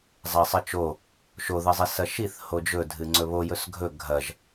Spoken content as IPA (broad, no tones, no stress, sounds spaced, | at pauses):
zˤ a sˤ ɨ t͡ʃ o | ʃ o ð ɨ zˤ i s ɐ ʃ i θ h o d͡ʒ ɵ dʱ ɨ ŋ͡ǀ ɵ β o j ɵ s ɡʱ ɵ ɡʱ ɐ ʒ